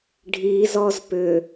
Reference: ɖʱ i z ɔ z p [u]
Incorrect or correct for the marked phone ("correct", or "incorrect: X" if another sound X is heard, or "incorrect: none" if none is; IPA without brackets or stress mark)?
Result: incorrect: ʏ